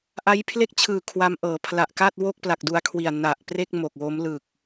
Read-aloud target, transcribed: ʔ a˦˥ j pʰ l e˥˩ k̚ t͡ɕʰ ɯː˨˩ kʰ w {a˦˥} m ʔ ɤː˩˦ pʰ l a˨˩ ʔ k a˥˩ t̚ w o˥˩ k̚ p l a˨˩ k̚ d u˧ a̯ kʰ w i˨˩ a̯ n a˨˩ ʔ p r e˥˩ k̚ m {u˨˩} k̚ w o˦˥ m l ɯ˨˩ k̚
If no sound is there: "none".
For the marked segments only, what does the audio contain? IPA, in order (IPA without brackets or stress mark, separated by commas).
a˦˥, o˨˩